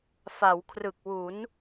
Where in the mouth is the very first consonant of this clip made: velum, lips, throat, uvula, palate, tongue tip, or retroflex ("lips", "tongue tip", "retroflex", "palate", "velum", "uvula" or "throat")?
lips